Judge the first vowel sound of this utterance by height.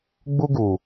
high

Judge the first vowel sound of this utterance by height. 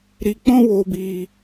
high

